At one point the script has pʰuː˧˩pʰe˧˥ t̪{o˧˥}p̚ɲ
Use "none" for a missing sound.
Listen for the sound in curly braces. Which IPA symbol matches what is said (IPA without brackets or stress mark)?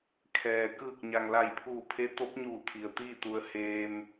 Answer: o˧˥